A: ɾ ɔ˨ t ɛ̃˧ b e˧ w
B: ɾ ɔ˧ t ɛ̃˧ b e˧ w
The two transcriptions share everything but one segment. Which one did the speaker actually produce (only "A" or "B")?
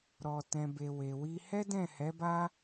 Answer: B